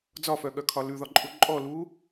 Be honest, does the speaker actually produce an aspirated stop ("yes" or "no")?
yes